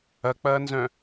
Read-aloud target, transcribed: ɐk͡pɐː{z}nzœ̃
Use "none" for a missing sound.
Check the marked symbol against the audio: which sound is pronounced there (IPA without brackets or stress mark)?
none